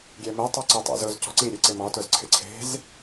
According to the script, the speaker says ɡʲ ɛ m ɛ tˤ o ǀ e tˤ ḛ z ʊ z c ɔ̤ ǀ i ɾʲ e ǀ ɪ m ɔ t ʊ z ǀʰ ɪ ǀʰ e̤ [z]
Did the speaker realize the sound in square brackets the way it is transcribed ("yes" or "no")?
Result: yes